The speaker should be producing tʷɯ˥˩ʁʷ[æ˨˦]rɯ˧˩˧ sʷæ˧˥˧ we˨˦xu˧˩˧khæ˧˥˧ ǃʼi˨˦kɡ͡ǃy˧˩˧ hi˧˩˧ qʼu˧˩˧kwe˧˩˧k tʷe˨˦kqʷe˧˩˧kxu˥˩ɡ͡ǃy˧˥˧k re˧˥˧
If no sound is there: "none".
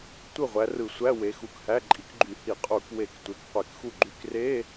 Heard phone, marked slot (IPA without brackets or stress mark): æ˨˦